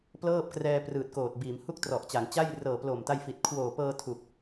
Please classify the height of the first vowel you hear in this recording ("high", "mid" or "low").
mid